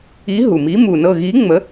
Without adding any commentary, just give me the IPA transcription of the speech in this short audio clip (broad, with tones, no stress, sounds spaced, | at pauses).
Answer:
i˨˥ ɦ u˩ m i˨˥ m u˩ n ɤ˧˩ ɣ i˨˥ ŋ͡m ə˨˥